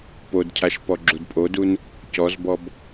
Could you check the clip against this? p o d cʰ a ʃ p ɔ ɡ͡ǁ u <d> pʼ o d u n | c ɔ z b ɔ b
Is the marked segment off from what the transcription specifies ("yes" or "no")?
no